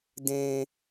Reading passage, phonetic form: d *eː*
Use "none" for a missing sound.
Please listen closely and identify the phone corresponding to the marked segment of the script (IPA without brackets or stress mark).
ẽː